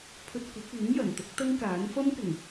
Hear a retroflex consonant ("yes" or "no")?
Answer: no